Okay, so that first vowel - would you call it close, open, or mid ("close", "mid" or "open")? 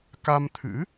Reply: open